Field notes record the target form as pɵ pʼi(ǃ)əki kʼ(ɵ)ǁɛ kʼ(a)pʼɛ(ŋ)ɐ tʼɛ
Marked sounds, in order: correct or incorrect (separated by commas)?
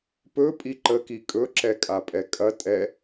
correct, correct, correct, incorrect